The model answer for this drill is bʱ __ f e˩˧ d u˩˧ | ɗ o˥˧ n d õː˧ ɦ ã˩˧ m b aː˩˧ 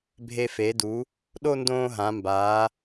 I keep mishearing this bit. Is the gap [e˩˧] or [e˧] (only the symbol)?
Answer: e˧